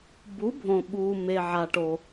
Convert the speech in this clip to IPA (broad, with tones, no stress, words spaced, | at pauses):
bu˩˥bʱõ˩ɓuː˩me˩ ʕa˩ʈo˩